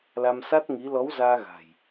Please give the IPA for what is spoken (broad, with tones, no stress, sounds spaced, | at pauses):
l a˧ m s a˦˥ t̚ ŋ i˨˦ l ɔ˨˦ w z aː˧ ɣ a̤˨˩ j